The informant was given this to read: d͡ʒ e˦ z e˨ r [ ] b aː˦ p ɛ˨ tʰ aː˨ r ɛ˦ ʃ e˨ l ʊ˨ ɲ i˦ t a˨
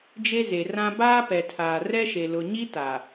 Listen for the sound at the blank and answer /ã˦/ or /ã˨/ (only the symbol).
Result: ã˦